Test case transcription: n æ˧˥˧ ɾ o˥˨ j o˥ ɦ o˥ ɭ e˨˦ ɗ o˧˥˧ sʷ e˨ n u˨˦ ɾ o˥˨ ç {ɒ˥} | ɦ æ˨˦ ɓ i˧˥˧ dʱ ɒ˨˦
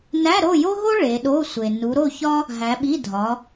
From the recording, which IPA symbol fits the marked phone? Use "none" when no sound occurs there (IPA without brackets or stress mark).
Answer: ɒ˥